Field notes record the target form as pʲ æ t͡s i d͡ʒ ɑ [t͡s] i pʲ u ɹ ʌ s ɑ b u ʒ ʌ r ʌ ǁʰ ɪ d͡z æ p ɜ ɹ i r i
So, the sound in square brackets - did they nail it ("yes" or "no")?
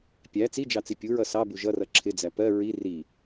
yes